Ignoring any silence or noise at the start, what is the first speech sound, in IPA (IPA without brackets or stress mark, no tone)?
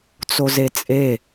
t͡s